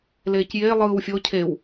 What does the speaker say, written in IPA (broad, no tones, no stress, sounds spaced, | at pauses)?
l eː c j eː lˠ ɯː w fʲ o cʰ e w